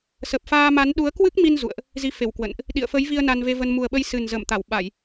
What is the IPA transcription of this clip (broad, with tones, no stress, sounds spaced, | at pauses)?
s ə˨˩ p̚ f aː˧ m a˨˦ n ɗ u˨˦ ə̯ k w ɨ˦˥ k̚ m i˧ n z ṵ˧˨ ə̯ ʔ | z i˧ f e˧˩ w k w ə̰˧˨ n ʔ | ɗ ḭ˧˨ ə̯ f ə˨˦ j v i˧ ə̯ n a˧ n v e˧ v ə˧ n m u˨˩ ə̯ ɓ ə˧ j s ɨ˨˩ n z ə˧˩ m t̪ a˧˩ w ɓ a˧˩˨ j